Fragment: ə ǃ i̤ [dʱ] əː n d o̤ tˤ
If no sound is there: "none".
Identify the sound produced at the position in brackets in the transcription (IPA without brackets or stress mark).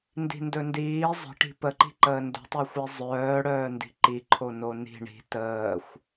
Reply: ǃ